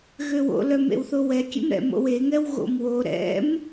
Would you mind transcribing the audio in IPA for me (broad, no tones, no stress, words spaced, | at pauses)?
ɣøwo̰lœm ḛwθowɛkʲḛm ɾɛ̰mo̰weŋɛw ɣo̰mwo ɾɛ̰m